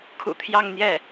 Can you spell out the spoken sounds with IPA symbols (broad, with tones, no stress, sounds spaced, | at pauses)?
kʰ ṵ˨˩ t̪ʰ j ɑ˥˧ ŋ n̪ j ɛ˥˩